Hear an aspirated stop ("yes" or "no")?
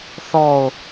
no